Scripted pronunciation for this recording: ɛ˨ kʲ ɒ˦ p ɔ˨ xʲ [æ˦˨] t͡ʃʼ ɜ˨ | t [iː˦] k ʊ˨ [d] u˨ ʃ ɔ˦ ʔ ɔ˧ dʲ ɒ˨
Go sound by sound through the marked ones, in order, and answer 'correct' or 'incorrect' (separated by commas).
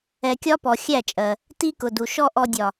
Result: correct, incorrect, correct